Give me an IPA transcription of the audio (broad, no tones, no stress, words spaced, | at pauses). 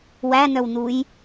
wænœwnuj